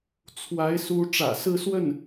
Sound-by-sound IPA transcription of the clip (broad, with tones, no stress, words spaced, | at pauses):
t͡sʰwa˧˥ɪ̯ su˧˥ʈ͡ʂä̰˨˩sɹ̩˥˧swə˥˩n